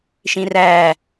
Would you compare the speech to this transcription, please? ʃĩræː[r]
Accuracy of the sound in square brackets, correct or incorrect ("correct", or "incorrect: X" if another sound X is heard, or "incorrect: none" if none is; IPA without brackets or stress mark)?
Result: incorrect: none